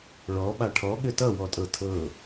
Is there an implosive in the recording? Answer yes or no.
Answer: yes